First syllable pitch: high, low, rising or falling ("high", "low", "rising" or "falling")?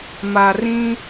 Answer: low